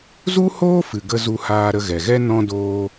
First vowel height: high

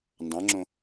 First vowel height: low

